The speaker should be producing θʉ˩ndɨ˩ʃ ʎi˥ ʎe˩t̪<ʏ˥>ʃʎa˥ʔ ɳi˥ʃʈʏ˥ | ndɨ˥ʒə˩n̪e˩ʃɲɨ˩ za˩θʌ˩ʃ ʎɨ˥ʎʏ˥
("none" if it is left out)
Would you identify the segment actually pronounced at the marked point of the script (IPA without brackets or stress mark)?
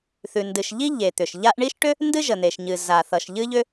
ʏ˩